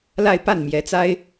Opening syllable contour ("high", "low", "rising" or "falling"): falling